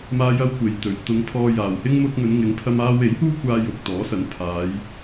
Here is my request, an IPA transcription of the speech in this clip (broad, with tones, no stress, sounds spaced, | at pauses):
m aː˥ j ɐ˥ w kʷ e˨ j t̪ ɵ˨ ɥ t̪ ʊ˨˧ ŋ pʰ ɔː˧ j aː˨ w h ɪ˥ ŋ m ʊ˧ k̚ ŋ ɵ˨˧ n ŋ ɪ˨˧ ŋ pʰ ɐ˧ m aː˧ w e˨˥ j h uː˥ kʷ aː˧ j ʊ˨ k̚ t̪ ɔː˨˥ s ɐ˨˥ n pʰ aː˨˧ j